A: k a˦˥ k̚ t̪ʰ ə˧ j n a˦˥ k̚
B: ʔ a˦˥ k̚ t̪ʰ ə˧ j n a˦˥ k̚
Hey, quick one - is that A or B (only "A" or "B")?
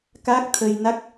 A